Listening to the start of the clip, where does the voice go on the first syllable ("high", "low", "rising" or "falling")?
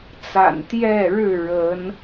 low